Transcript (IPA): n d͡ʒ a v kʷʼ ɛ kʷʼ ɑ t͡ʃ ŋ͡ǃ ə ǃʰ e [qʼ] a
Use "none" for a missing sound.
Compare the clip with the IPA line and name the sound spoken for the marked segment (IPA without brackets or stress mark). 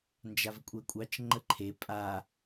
pʼ